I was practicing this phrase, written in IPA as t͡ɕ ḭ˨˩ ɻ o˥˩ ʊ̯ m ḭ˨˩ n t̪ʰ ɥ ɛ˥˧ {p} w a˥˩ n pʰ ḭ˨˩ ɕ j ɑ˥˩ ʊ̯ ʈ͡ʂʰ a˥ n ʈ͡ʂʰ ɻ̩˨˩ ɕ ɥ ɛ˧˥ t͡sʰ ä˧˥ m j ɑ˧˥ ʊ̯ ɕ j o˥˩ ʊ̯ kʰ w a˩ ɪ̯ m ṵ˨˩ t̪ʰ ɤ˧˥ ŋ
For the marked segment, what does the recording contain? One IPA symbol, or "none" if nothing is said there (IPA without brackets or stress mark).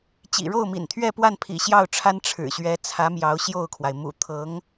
p